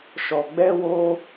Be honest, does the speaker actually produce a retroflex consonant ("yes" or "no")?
no